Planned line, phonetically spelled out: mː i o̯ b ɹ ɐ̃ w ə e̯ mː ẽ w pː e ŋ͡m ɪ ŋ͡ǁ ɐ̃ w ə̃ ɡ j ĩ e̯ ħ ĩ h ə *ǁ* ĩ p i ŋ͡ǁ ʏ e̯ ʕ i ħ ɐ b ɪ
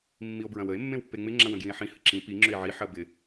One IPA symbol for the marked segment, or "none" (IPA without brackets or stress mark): ǁ